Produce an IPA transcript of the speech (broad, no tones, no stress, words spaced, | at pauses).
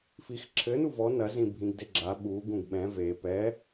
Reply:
fixǁʰɘ nuvɔ nɐ zĩbʱĩɡdeɡ͡ǁa ɓu ɡũɡɓɛ̃ ve pɛ